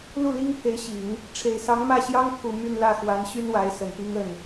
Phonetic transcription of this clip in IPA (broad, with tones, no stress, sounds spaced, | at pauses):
l u˥˩ l i˥ ŋ pʰ e˧˥ ɪ̯ ɕ i˨˩˦ ŋ | ʈ͡ʂʰ e˨˩ ɪ̯ s ɑ˧˥ ŋ m ä˥˩ ɕ j ɑ˥ ŋ t̪ʰ u˨˩ m y˥˧ n l ä˥˩ x w a˧˥ n ɕ y˥ n w a˧˥ ɪ̯ s ə˨˩ n p i˥ ŋ ə˥˩ n